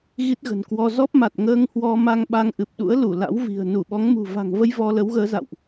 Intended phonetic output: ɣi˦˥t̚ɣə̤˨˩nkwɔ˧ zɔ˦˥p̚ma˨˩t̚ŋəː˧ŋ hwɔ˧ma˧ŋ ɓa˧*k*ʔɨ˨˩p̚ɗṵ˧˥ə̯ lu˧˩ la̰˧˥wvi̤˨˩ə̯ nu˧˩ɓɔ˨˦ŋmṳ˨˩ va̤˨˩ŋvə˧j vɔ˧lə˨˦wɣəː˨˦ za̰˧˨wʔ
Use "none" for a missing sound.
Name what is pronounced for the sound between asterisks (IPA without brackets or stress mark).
ŋ